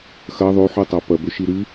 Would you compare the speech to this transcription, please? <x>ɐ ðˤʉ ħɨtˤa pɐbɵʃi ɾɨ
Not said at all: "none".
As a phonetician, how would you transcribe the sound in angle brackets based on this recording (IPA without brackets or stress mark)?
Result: x